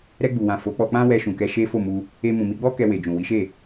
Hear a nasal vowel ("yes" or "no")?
yes